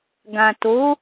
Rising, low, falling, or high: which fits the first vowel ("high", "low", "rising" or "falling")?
low